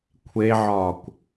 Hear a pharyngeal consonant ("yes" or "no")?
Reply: yes